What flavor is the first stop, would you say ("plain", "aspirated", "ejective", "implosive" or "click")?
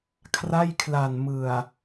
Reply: aspirated